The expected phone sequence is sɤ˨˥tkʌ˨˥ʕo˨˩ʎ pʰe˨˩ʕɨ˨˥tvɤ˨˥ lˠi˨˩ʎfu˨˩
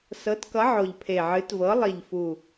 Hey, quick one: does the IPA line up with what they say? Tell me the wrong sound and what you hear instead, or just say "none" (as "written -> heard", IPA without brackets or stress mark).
none